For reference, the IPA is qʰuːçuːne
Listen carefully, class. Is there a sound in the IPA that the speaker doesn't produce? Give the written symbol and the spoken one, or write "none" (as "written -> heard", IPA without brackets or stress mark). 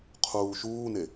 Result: ç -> ʃ